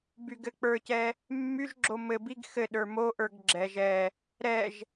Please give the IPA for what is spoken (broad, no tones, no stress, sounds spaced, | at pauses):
b y ɡ ɘ k͡p ə˞ c ɛ | mː y ʒ ɡ͡ǁ o m ɘ b i ɡ x ɘ ɗ ə˞ m o ʔ ə˞ ɡ ɡ͡ǁ ɛ ʒ ɛ | ɾ ɛ ʒ